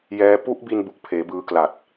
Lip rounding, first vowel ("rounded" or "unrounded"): unrounded